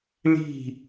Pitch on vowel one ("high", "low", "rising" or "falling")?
falling